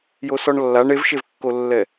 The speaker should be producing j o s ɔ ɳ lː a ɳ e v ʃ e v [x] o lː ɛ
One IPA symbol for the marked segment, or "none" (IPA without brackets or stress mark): kː